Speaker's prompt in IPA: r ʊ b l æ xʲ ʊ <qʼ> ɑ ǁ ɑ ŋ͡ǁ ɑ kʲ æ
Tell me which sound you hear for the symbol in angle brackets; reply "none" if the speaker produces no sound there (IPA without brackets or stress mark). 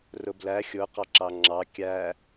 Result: q